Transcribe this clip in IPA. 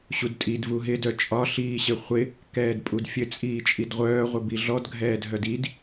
ɕ u d tʼ i d v u ɦ ɪ d œ t͡ʃʼ ɒ ɬ iː ɕ ɪ χʷ ɪ | k ɛː d pʼ u d fʲ ɘ t͡sʼ iː t͡ʃʼ i d ʁʷ œː ʁʷ ɪ b i ɮ ɔ d ɡʱ ɛː dʱ œ d i d

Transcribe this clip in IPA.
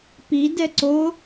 p i d ɛ ǀ o

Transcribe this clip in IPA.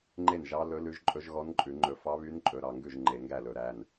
ŋ͡ǃ e˥˩ n ʒ ɑ˧˥ l ɵ˧˥ l ʉ˧˥ ʒ ǃʼ ɵ˧˥ ʒ ɣ ɔ˧˥ n ǃʼ ʉ˧˩˧ ŋ͡ǃ ɵ˧˩˧ f ɑ˧˥ β y˧˥ n ǃʼ ɵ˩˧˩ ɾ ɑ˥˩ ŋ ɡ ʉ˥˩ ʒ ŋ͡ǃ e˧˩˧ ŋ ɡ æ˥˩ l ɵ˧˩˧ ɾ æ˩˧˩ n

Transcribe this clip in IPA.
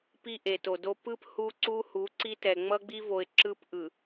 p i˦ ʔ e˨ t o˨ d o˦ p ɯ˦ p h u˦ ǀ u˦ h u˨˦ ǀ i˦ t ɛ˨ ŋ͡m ʌ˦ ɡ͡b i˦ v o˨ ɪ̯ ǁ ɯ˦ p ʔ ɯ˨

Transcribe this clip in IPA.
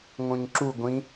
ŋ õ ɲ ǁ u ɡʷ ĩ

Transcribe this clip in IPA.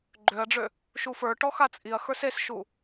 ɡ͡ǃ ø ɐ̯ ɖ͡ʐ ø | ʃ u f ə˞ ʈ ɔ x a t͡sʼ i ɐ̯ x ə˞ s e s ʃ u

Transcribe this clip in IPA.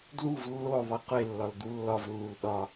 d l u v lː o ðˤ i qʷ e lː ɒ l d̪ u lː ɒ v lː u l ɗ ɒ

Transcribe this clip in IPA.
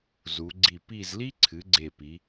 z u˩˧ ɡ͡ǀ i˧˩ p i˥˧ z l i˥ ǀʰ ɨ˩˧ ɡ͡ǀ e˧˩ p i˩˧

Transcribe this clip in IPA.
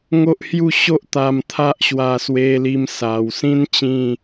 ŋ o˦ ʔ h j u˥˧ ɕ o˦ ʔ t̪ a˧ m t̪ʰ a˦ ʔ ɕ w a˧ s w e˧ l i˧ m s a˨˩ w s ĩ˦ n t͡ɕ ĩ˥˧

